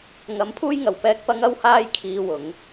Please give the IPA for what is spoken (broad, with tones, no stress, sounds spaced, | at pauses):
ŋ ɐ˨˥ m pʰ uː˥ j ŋ ɐ˨ w p ɛː˥ k̚ p ɐ˥ ŋ ɐ˥ w h aː˥ j kʰ iː˧ w ʊ˨˥ ŋ